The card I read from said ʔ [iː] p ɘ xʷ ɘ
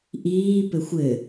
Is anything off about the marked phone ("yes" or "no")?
no